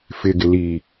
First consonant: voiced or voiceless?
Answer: voiceless